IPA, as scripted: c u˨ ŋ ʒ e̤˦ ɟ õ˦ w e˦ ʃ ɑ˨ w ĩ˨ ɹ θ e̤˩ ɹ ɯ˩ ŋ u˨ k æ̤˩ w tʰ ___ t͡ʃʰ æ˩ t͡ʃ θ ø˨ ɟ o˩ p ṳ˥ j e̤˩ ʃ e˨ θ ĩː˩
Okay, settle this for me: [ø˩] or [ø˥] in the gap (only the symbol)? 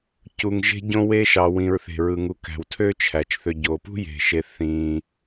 ø˥